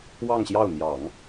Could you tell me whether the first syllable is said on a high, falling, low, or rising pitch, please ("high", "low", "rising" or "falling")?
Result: falling